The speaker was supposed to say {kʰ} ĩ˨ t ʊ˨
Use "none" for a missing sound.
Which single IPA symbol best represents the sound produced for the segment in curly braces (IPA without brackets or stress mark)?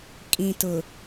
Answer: kʼ